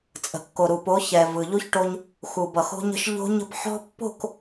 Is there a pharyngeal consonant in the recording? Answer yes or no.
yes